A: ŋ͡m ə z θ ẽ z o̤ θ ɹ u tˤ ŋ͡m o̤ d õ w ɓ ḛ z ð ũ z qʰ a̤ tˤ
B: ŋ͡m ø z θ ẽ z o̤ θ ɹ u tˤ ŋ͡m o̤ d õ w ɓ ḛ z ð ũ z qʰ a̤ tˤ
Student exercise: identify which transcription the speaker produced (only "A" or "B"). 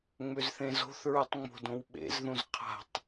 B